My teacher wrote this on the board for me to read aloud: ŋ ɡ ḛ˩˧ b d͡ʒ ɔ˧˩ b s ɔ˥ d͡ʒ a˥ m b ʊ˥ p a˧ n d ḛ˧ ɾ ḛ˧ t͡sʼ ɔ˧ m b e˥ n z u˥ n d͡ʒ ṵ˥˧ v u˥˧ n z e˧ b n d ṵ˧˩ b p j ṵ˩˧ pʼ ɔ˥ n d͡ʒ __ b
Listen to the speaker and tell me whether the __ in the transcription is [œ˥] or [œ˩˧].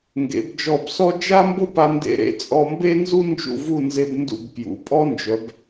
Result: œ˩˧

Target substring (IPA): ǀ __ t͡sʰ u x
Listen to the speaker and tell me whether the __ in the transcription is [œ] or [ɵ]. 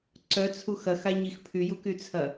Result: œ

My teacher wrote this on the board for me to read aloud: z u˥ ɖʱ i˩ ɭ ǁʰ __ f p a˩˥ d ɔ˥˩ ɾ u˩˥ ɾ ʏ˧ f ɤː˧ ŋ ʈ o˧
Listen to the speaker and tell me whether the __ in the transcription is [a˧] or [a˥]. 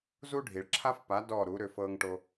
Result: a˥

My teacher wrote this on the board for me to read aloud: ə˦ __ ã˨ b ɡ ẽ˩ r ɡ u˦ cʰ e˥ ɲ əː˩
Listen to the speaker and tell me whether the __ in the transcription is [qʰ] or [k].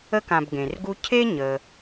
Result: k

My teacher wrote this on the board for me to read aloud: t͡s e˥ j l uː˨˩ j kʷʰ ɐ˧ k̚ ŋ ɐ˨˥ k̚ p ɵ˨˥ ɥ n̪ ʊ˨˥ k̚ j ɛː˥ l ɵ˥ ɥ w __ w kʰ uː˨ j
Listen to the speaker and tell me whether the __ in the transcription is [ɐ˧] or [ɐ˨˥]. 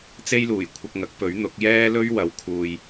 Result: ɐ˨˥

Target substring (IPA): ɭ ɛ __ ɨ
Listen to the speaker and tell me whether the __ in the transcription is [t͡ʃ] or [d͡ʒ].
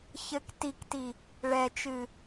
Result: t͡ʃ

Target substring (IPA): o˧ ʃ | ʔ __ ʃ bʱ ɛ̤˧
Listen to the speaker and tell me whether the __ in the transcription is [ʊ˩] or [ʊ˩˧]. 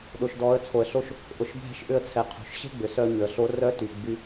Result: ʊ˩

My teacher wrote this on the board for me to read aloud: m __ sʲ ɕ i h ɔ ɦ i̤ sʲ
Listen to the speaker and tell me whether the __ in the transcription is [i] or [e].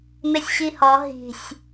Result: e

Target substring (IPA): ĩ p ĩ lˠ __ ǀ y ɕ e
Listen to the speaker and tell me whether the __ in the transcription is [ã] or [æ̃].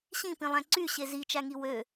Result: æ̃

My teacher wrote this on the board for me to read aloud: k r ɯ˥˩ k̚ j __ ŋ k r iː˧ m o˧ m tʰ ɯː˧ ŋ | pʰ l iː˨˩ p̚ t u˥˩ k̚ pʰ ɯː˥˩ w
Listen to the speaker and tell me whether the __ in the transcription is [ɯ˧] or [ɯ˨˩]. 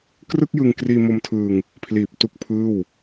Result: ɯ˧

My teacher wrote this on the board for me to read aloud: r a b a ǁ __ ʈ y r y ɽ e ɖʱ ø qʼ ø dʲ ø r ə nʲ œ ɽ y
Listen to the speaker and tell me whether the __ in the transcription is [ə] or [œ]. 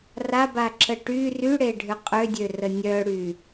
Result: ə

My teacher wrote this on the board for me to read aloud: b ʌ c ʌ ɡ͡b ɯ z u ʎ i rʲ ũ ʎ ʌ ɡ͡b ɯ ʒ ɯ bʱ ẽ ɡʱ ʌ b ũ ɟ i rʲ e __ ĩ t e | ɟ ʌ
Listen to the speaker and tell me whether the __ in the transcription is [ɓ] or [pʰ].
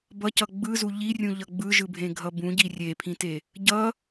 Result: pʰ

